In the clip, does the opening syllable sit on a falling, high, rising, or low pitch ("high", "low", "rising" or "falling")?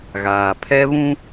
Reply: low